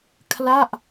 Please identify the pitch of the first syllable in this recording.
falling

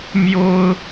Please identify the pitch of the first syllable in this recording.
high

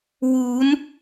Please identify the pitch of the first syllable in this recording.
rising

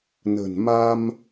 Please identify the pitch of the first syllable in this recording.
low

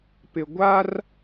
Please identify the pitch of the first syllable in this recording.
low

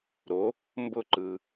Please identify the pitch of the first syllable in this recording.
rising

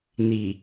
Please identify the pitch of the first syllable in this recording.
low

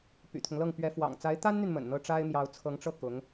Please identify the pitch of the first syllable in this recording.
low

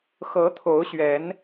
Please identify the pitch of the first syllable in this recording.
rising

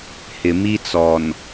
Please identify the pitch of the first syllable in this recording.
low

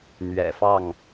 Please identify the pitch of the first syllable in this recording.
low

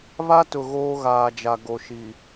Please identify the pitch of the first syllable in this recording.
high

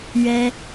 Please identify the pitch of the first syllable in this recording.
high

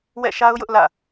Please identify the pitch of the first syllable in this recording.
falling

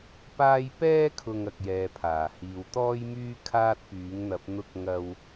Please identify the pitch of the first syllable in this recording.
high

